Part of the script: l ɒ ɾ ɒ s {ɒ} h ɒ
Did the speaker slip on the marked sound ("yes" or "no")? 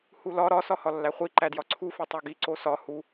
no